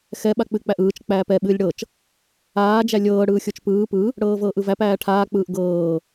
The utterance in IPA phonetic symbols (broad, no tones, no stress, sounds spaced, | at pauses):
x ɛ ɓ a k͡p ɨ k͡p æ ʔ ɯː t͡ʃ k͡p æː p ɛ ɓ ɨː lʲ ɽ ɤ t͡ʃ | aː d͡ʒ æ lʲ ɤː ɽ ɯː xʲ o t͡ʃ p ɯː p ɯ | ɽ ɤː v ɤː ʔ ɯ v æ p æː ʈʰ aː k͡p ɯː ʔ ɡ ɤː